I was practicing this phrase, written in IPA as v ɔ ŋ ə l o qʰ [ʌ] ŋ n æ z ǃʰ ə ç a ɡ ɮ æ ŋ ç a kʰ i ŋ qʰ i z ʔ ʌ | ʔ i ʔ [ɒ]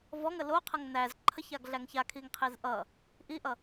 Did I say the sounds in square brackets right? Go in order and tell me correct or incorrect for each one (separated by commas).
correct, incorrect